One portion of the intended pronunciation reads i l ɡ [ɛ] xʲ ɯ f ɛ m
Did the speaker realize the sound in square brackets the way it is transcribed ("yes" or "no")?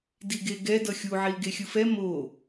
no